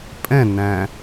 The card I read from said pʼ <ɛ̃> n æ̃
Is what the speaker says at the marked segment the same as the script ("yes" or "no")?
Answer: yes